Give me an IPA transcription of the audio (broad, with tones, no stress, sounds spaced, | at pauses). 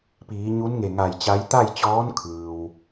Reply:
p iː˩˧ ɲ u˧˥ n ŋ e˧˩ ŋ a˧˩ j t͡ɕ a˧˥ j t̪ a˥˨ j t͡ɕ ɔː˧˥ n kʰ ɯː˩ w